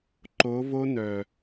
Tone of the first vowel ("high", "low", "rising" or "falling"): rising